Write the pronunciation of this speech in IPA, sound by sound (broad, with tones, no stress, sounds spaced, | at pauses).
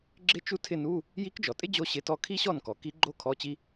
ɡ͡ǁ ɪ˥ t͡ʃ u˥ tʰ ɪ˥˧ n u˧˥˧ | j i˧˥ k d͡ʒ ɔ˩ tʼ ɪ˥ d͡ʑ o˥ ɕ ɪ˧˥˧ t ɔ˥˧ kʰ i˥ ɕ ɔ˥˩ n k ɔ˩ k i˧˥ ɡ͡ǃ o˥ kʰ ɔ˧˥˧ t͡ɕ i˥